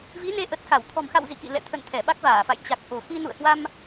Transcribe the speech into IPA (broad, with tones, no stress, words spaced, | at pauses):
vi˨˦ne˨˦ ʔə˨˩t̚xa˧˩w t̪ʰɔ̤˨˩mxa̰˧˨w zḭ˧˨kḭ˧˨ lɛ̰˧˨t̪ʰə̰˧˨n t̪ʰɛ˧˩ɓa˦˥k̚vaː˧˩fa̰˧˨j t͡ɕa˨˩k̚ ʔo̤˨˩xi˧ nṵ˧˨ə̯hwa˧m